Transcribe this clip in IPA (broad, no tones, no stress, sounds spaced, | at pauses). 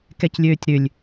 k ɛ c lʲ øː tʲ ɾ ʏ lʲ